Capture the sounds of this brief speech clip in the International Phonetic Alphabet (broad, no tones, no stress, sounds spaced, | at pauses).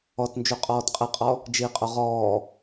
ɔ t n d͡ʒ u qʼ ɔː t qʼ ɘ qʼ ɔ | d͡ʒ i qʼ o ʁ ɔː